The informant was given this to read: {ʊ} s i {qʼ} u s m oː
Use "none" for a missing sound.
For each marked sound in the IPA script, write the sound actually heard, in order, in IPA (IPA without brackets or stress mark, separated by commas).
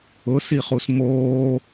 ʊ, χ